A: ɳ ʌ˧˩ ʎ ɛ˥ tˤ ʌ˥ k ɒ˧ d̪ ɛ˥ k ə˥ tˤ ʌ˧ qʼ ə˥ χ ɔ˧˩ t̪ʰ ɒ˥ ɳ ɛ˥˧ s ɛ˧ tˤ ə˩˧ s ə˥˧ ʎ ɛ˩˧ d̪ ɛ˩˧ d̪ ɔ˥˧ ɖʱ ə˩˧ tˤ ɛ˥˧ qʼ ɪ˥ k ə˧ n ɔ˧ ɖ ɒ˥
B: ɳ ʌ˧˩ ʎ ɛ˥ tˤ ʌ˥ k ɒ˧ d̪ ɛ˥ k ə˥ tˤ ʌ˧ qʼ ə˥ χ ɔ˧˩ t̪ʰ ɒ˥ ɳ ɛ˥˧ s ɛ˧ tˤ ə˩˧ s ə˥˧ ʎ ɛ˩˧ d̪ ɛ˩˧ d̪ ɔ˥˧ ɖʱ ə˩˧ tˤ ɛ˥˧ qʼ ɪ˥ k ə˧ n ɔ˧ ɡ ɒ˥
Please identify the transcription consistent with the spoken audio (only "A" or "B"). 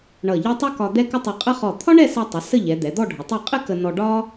A